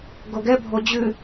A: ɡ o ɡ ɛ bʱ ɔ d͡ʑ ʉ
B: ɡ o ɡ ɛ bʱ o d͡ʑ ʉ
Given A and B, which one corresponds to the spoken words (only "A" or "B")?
B